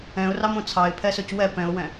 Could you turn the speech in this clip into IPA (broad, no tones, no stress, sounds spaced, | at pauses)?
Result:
ɛ̃ ʊ̯ r ɑ m õ t͡sʰ ɑ ɪ̯ pʰ ɛ s ɵ c w ɛ p ɛ̃ ʊ̯ w ɛ̃